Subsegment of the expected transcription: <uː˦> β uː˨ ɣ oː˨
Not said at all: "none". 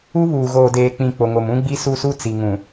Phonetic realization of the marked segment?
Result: u˦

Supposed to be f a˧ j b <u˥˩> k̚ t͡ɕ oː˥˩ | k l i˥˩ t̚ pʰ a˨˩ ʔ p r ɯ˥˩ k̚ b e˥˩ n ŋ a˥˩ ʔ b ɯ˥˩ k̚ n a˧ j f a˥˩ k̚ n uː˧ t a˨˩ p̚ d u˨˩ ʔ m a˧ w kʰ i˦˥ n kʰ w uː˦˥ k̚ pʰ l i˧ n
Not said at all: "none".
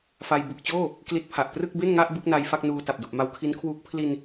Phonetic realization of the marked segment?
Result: u˨˩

